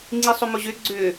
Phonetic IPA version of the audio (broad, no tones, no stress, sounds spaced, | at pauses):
ŋ͡ǀ i sˤ ʏ m ʊ ʑ ʏ ɡ͡ǀ ʏ